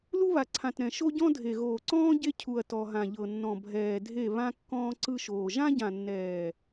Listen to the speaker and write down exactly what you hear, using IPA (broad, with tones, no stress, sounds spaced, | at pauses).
l u˦ β a˨ ǀʰ ã˨ t ɾ ɛ̃˨ ʃ o˦ ɟ ɔ̃˦ dʱ e˨ ɣ oː˨ ǀ ɔ̃ː˦ ɟ e˦ cʰ u˨ ɐ̯ t ɔ˨ ɦ ã˨ ʎ ɤ˨ nː ɔ̃˨ bʱ ɛː˨ dʱ e˦˨ β ã˦ kː ɔ̃ː˦ ǀ ɯ˦ ʃ oː˨ ʒ ã˦ ɟ ã˨ nː ɛː˨